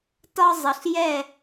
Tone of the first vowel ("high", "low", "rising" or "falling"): high